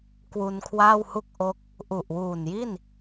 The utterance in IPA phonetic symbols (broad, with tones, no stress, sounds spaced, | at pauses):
k w u˧ n kʰ w aː˥˩ w h u˥˩ k̚ ʔ o˦˥ k̚ | ʔ u˨˩ ʔ w uː˨˩ n j i˥˩ n